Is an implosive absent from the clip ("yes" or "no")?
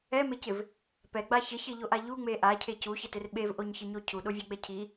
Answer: no